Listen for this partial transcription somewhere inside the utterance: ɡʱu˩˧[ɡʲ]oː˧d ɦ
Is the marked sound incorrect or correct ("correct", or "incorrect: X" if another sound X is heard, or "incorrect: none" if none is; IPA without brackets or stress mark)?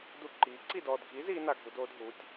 incorrect: d